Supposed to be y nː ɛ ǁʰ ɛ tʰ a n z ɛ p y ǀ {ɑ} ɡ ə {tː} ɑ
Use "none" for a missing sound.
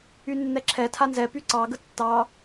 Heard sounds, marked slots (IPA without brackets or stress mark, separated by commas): ɑ, tː